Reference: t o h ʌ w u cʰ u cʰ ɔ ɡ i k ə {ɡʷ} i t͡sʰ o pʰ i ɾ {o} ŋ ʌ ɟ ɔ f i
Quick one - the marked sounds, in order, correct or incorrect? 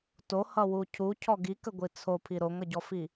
correct, correct

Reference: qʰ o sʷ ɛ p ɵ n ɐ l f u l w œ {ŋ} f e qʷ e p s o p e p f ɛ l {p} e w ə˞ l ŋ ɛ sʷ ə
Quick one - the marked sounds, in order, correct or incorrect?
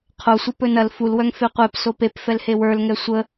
correct, incorrect

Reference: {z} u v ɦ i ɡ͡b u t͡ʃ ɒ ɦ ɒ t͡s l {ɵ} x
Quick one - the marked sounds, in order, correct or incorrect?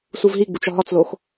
incorrect, incorrect

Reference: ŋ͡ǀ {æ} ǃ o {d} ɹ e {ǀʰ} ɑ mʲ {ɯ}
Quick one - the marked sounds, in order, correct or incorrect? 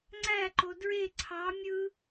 correct, correct, correct, correct

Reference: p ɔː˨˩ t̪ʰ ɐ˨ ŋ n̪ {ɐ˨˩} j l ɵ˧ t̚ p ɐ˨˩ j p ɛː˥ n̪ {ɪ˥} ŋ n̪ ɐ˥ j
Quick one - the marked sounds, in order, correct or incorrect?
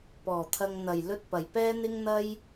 correct, correct

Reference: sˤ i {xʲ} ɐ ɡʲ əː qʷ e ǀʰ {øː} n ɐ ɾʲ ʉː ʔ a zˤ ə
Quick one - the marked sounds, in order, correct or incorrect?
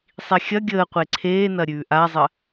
correct, incorrect

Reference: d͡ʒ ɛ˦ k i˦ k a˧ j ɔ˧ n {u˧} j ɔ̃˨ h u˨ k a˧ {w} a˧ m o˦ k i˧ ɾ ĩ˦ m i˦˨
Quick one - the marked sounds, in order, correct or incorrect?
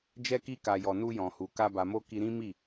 correct, incorrect

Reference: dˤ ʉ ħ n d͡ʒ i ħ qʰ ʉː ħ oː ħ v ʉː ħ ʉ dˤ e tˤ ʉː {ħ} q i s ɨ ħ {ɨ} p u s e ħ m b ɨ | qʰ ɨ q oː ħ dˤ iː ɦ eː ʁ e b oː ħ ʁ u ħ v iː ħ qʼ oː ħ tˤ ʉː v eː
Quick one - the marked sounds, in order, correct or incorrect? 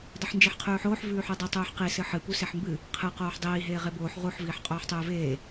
correct, correct

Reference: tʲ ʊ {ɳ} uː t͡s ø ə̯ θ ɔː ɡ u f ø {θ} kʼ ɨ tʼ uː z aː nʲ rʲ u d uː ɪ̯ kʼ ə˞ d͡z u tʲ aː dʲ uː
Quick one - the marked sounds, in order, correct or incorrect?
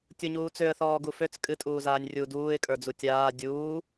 incorrect, incorrect

